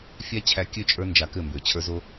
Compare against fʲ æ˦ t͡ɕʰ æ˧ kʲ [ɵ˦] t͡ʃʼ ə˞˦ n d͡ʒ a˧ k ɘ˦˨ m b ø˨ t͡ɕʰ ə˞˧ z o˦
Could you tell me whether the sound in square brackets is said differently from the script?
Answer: yes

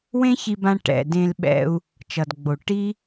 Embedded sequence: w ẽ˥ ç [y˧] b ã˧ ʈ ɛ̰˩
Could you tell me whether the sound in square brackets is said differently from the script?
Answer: yes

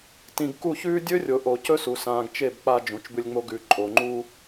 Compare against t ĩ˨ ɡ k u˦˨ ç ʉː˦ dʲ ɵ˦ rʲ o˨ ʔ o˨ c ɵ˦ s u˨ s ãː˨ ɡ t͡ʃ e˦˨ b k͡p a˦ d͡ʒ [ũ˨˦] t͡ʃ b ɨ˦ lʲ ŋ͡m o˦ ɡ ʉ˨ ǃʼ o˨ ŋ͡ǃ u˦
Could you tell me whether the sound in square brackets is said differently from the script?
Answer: no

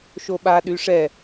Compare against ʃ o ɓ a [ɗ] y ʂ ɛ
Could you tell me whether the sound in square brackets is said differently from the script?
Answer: no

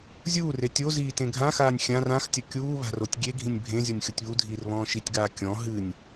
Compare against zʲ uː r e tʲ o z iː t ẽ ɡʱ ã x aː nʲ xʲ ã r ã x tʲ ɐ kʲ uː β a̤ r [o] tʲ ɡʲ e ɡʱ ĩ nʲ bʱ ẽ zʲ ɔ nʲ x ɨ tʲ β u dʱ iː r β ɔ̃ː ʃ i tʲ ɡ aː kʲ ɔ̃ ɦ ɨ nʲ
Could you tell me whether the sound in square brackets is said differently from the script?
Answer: no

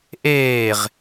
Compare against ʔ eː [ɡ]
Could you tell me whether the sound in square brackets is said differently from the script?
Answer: yes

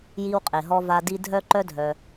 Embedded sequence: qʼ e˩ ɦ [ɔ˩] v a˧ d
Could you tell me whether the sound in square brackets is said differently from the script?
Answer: yes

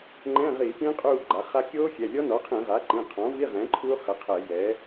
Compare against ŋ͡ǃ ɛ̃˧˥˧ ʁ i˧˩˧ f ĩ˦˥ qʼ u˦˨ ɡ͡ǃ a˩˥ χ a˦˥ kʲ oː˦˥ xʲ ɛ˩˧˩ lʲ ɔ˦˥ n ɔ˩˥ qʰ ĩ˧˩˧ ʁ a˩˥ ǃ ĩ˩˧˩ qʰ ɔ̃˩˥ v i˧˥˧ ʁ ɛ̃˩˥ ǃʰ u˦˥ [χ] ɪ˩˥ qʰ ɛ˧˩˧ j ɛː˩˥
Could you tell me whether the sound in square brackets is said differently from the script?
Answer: no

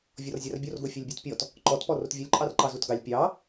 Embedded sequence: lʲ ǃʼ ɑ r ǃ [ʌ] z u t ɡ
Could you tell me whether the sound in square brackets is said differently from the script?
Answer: yes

